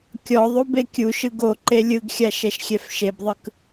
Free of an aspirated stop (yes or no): yes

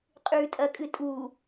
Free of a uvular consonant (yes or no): no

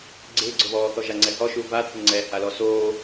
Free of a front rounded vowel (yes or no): yes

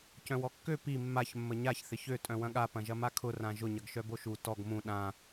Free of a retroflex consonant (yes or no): yes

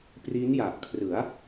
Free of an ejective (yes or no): yes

